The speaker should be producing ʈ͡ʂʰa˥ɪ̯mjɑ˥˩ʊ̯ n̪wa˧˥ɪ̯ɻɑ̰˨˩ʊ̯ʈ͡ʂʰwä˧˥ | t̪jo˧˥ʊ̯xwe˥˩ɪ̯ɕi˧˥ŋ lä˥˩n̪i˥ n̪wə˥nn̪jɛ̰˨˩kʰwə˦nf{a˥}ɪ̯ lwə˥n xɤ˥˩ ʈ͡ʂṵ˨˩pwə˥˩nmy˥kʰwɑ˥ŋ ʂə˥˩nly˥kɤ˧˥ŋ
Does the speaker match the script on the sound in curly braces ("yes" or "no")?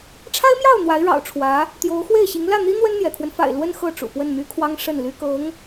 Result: no